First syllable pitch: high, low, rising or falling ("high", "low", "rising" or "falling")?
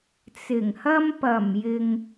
low